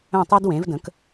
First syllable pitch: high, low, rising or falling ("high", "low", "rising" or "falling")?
falling